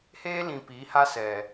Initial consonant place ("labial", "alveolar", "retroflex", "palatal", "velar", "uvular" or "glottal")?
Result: glottal